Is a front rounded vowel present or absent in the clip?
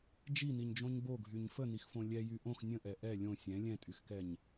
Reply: present